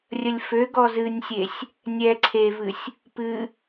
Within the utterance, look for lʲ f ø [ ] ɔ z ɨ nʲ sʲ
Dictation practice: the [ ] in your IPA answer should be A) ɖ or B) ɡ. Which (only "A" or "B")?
B